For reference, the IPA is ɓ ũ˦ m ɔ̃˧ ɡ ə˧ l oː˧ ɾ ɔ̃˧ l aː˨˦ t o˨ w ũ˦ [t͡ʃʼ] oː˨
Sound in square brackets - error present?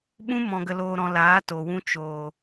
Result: yes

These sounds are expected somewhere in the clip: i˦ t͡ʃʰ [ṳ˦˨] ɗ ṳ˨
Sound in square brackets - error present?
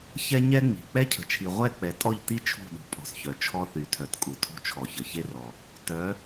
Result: no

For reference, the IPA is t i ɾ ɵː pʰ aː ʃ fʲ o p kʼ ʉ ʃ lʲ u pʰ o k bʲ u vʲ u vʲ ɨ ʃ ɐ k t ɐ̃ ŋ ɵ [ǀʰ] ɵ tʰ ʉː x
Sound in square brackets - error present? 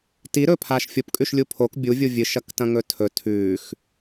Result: yes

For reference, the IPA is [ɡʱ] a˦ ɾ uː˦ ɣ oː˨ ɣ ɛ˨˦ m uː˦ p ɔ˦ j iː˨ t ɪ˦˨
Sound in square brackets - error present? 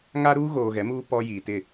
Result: yes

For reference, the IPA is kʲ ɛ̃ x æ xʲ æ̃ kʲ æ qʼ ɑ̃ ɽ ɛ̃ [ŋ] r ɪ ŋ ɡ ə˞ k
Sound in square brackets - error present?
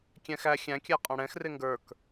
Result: yes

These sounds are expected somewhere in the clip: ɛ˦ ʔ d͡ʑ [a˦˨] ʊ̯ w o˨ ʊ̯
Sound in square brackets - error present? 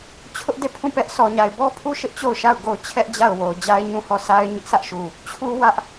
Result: no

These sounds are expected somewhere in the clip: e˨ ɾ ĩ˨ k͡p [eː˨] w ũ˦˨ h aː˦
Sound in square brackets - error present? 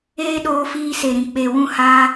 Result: yes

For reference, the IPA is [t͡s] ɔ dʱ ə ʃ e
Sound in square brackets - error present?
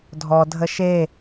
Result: yes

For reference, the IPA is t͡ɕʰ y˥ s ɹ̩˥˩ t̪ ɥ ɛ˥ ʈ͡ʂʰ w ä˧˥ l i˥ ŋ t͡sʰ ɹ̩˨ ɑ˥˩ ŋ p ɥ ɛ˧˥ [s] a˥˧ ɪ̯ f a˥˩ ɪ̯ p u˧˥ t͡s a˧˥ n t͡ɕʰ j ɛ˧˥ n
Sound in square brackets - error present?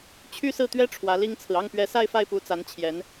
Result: no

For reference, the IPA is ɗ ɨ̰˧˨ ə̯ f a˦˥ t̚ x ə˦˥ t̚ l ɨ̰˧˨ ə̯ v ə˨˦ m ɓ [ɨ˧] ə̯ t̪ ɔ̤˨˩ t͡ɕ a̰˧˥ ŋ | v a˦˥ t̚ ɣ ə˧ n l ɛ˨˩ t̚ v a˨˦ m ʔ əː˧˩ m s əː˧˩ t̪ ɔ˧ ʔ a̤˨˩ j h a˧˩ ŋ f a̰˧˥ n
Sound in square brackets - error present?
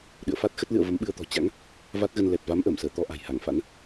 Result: no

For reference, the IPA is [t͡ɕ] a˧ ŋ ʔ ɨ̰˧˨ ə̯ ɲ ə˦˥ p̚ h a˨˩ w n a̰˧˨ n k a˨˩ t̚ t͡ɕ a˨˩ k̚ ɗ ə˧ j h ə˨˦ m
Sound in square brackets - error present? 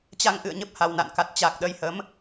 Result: no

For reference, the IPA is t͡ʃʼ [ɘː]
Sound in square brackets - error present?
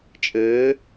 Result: no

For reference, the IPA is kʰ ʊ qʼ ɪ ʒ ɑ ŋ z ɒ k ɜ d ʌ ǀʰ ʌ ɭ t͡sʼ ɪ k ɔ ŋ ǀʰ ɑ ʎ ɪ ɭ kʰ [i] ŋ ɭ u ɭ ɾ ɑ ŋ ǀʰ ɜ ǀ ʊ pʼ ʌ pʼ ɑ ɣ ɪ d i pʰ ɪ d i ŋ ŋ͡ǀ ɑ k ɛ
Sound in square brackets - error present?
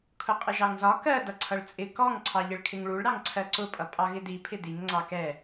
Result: yes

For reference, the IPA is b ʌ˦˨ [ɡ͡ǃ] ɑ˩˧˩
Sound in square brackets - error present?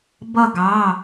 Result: yes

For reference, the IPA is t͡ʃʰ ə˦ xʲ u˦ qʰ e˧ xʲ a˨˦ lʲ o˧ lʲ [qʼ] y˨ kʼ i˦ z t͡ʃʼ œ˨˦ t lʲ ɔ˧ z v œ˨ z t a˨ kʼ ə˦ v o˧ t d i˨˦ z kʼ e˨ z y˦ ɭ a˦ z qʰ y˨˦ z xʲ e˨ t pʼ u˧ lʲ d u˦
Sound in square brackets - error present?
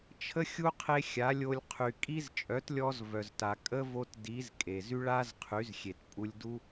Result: yes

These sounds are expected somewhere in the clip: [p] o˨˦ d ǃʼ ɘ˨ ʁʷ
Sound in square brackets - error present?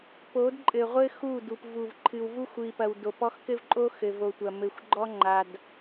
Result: no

